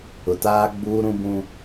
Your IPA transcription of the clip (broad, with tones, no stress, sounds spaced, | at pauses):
ʊ˨ t aː˦ ɡ͡b uː˦ ɾ ũ˦ b ũ˦